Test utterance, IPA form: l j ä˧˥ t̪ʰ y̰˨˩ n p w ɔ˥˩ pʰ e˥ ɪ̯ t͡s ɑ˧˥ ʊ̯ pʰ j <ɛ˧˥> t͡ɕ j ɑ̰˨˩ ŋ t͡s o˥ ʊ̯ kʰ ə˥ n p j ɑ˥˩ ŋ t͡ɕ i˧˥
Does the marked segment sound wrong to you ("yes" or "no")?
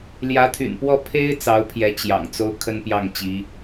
no